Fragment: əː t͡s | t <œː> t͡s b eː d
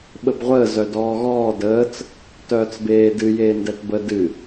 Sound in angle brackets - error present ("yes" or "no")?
no